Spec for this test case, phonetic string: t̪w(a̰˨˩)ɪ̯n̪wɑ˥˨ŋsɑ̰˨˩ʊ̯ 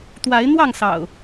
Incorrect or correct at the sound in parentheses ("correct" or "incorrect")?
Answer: incorrect